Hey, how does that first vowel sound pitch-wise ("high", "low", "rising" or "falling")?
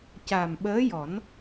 low